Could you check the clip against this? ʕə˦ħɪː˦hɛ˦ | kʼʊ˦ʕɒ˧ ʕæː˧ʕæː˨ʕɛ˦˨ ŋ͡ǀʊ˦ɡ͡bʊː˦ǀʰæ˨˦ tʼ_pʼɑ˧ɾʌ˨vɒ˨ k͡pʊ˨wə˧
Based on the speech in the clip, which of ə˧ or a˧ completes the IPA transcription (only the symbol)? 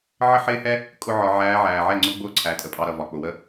ə˧